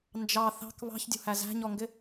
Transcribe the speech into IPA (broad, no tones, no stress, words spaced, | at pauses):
nd͡ʒɑ θɑ̤k βɑ̤çdʲṳhæ zæ̤ɲɔŋɡɪ